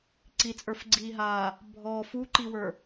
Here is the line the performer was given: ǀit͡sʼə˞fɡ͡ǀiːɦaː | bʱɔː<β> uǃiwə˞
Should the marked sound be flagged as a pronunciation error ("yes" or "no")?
yes